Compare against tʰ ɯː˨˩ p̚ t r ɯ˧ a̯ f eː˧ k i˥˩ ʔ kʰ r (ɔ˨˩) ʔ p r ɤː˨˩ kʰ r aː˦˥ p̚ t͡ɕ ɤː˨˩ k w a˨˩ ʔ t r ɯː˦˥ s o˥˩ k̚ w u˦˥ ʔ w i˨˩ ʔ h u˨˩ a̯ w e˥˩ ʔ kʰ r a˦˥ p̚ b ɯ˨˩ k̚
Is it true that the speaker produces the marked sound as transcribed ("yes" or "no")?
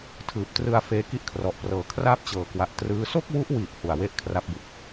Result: yes